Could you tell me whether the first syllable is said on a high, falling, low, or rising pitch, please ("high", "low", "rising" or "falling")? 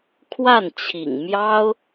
falling